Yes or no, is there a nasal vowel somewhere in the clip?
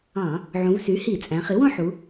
yes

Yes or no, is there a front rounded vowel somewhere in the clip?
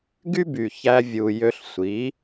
yes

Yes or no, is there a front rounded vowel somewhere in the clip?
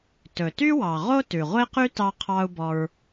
yes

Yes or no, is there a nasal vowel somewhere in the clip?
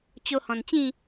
yes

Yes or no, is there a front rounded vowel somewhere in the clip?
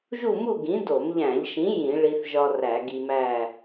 no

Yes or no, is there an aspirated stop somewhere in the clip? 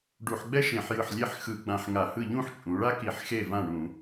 no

